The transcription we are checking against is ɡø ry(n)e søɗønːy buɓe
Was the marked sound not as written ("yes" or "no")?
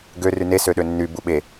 no